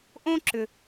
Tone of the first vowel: high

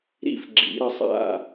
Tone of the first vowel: high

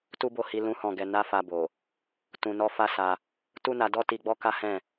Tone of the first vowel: high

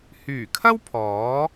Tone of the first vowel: low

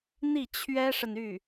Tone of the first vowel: falling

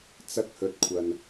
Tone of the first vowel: high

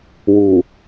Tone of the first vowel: low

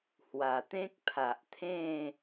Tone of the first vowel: low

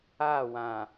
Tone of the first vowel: falling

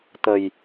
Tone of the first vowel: low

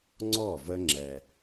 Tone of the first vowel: falling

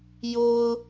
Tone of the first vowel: high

